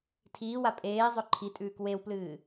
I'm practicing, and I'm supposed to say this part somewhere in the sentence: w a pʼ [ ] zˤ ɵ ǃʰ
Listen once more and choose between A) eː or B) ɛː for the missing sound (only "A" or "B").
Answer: A